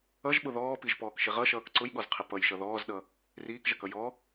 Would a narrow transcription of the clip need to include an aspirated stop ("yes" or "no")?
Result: yes